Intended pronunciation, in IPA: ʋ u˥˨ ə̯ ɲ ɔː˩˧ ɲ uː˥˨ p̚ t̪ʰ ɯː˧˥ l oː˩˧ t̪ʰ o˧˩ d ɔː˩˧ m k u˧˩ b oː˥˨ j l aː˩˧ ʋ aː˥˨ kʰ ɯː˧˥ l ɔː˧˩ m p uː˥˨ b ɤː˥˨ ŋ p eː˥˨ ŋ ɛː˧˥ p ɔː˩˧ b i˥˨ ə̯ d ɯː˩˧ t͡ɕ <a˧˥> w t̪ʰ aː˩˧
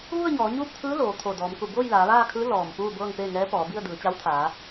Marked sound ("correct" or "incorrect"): correct